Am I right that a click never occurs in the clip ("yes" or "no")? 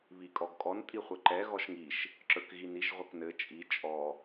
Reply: no